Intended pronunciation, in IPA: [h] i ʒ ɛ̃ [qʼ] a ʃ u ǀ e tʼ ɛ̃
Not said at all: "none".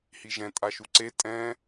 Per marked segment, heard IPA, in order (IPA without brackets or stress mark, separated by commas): h, tʼ